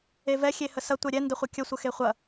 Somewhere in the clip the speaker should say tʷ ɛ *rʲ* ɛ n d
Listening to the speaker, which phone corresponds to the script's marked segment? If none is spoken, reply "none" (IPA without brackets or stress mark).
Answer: ɾʲ